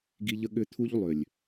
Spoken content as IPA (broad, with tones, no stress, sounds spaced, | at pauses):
ɡ i˦ ʎ ə˦ ɠ ʏ˦ t̪ʰ u˦ ʎ lˠ ʏ˨ lʲ